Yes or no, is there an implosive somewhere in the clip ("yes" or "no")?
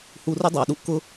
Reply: yes